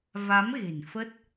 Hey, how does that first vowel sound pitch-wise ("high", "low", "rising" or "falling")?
rising